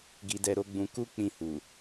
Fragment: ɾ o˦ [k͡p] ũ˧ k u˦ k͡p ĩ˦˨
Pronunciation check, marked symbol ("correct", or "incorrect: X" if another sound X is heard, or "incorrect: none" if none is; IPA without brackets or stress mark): incorrect: ɡ͡b